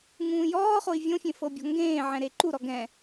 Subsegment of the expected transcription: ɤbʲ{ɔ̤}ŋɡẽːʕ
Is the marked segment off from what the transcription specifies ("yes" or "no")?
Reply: no